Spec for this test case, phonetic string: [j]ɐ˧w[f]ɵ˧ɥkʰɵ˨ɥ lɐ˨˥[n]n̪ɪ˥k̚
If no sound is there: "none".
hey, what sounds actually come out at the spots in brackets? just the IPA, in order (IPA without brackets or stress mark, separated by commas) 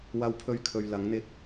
w, pʰ, ŋ